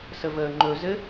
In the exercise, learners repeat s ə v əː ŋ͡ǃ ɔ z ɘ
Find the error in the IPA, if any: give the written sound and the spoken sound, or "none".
ɔ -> ɵ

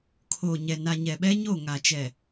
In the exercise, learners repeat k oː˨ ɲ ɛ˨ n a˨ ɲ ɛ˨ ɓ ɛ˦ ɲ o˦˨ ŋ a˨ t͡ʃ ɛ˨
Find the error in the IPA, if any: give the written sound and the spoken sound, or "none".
k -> kʰ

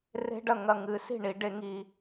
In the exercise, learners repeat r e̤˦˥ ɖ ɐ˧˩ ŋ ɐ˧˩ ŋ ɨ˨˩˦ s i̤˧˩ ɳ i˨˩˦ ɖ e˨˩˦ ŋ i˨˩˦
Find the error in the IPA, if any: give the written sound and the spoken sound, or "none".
none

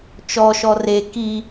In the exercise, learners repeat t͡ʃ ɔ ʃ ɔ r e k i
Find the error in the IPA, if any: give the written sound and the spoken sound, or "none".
none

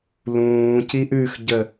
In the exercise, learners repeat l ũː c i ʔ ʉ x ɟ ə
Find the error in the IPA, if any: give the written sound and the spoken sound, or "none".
none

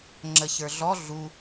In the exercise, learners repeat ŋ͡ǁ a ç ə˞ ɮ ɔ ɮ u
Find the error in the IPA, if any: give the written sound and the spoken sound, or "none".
a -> ə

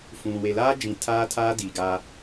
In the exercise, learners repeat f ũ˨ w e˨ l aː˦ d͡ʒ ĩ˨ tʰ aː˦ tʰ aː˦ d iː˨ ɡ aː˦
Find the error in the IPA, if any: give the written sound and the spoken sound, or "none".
none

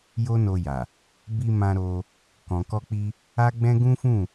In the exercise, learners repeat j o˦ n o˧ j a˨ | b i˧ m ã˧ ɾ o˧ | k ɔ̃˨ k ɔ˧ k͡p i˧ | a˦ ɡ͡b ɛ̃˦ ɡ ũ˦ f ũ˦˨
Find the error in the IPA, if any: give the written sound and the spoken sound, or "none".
none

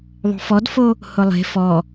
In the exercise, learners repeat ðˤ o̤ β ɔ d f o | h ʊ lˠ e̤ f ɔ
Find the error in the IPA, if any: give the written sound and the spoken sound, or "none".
β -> f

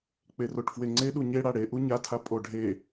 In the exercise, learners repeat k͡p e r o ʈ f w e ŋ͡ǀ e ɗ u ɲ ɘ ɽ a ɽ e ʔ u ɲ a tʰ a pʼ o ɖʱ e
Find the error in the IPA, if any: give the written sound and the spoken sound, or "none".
ɘ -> e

